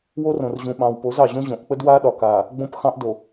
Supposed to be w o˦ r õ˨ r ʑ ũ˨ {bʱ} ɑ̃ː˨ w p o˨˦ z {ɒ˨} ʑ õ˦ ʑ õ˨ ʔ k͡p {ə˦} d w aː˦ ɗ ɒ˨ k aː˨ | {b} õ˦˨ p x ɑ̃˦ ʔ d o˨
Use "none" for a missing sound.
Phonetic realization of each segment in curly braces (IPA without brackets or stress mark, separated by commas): ɓ, ɑ˨, ə˦, ɡ͡b